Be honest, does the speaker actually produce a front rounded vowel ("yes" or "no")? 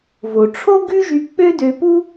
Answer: yes